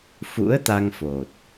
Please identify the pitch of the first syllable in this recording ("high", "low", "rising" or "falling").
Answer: rising